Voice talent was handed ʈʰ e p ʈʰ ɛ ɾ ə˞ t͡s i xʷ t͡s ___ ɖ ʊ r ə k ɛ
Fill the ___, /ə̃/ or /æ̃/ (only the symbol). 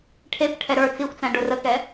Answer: æ̃